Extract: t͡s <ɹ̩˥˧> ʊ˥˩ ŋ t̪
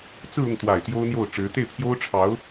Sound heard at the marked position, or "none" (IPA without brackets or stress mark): ɹ̩˥˧